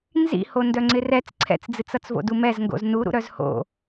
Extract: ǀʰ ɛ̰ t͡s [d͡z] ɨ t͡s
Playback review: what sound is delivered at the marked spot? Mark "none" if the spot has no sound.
d͡z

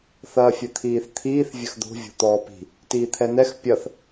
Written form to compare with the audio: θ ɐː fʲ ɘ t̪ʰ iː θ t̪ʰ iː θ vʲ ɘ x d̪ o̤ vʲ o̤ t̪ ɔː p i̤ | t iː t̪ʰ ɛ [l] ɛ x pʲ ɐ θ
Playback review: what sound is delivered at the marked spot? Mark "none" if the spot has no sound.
n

